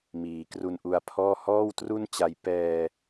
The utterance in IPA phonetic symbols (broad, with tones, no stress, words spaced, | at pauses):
miː˩˦kru˧nʔu˧a̯pʰɔː˥˩ hɔː˥˩wtru˥˩nt͡ɕa˧j pɛː˧